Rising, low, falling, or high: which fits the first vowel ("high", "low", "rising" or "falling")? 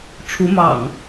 rising